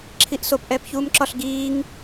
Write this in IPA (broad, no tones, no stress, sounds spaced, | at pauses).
ǁʰ i ʔ s o p ʔ ɛː p ç uː m ǁ ɒ ɬ ɡ iː ŋ